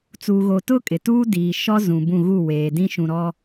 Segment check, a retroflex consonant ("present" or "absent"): absent